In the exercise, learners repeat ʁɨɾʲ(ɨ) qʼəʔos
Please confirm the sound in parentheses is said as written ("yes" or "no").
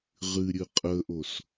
yes